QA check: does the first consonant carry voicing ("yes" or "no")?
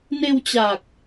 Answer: yes